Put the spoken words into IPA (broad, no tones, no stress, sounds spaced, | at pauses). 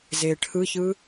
z eː ʈʰ ɯ ç ɯ